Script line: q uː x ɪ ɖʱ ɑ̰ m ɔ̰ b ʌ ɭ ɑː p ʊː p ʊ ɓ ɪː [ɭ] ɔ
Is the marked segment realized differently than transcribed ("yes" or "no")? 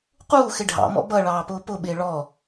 no